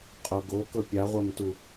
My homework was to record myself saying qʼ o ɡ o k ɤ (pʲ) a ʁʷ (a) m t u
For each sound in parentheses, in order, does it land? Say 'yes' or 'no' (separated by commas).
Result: yes, yes